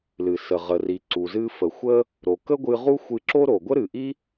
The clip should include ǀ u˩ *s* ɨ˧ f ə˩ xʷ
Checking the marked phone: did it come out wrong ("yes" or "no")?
yes